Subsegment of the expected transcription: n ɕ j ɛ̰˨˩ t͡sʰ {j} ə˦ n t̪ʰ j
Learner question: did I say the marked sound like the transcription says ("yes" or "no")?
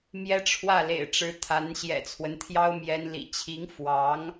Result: no